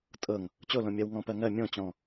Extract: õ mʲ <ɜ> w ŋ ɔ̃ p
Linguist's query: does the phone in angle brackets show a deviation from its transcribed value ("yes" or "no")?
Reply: no